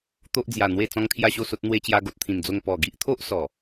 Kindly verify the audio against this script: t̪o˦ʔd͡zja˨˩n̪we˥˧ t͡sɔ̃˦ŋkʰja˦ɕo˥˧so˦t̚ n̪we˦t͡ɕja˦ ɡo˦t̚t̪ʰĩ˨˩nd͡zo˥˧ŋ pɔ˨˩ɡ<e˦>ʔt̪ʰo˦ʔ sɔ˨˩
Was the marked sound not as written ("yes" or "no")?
yes